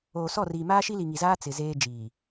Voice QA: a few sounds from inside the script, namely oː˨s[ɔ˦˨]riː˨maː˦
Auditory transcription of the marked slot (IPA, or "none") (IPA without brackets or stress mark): ɔ˦˨